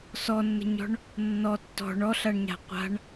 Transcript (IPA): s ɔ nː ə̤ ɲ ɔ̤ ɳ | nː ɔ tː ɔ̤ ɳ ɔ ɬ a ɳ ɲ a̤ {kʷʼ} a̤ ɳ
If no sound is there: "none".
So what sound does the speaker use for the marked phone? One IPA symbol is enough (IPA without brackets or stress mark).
qʷ